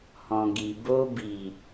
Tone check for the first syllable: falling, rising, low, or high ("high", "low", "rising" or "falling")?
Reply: low